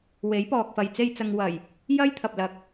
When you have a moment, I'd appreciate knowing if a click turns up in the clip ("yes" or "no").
no